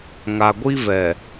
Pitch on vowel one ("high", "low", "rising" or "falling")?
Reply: low